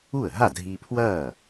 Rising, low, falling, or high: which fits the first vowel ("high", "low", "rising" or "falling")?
falling